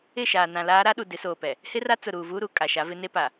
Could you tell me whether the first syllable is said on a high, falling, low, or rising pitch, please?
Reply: falling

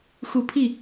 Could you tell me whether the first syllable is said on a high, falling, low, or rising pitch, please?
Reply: low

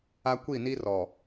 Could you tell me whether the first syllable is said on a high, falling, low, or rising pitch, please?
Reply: high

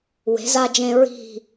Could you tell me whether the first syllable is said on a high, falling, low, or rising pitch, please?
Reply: rising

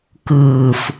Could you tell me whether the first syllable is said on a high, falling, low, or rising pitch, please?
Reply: low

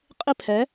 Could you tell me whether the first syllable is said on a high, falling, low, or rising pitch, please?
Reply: falling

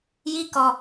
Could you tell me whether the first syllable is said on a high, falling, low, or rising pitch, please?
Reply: high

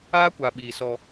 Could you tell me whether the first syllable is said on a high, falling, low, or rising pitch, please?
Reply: high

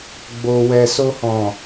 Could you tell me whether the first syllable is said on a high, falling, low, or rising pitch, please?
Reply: low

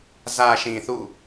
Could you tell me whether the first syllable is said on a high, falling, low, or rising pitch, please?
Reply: low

